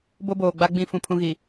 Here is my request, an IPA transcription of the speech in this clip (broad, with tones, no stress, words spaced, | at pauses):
bo˦boː˨ɡ͡ba˦ɡ͡bĩ˦˨ fũ˦˨pʰũ˦ɣi˨